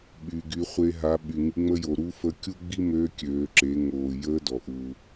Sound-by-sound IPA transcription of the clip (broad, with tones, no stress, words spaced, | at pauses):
ɓy˩ ɡy˩˧χʷe˧ ɦa˩˧ɓy˩ ŋi˩˧ŋ͡mə˧jo˩ ɾu˧˥fə˧˥kʲu˥ ɡ͡bi˥mø˧˥kʲøː˩˧ǁe˩˧ ŋoː˩ jəː˧˥dɔ˩ ʔu˩